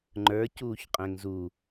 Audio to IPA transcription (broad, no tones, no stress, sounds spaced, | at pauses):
ŋ͡ǃ ə˞ c uː ç qʼ ɛ̃ ŋ z u